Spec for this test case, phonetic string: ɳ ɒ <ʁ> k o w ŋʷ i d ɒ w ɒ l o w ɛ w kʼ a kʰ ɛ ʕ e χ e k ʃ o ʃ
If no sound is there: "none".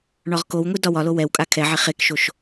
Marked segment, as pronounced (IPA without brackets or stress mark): ʁ